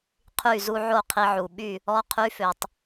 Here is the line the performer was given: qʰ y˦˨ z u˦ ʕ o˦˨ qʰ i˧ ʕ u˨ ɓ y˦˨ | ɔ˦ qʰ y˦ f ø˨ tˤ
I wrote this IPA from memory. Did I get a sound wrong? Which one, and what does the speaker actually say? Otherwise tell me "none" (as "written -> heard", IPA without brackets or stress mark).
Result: none